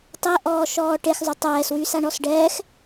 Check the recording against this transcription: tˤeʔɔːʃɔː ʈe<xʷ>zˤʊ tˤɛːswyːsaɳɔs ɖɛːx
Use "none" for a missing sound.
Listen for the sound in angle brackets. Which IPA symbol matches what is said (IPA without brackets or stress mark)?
x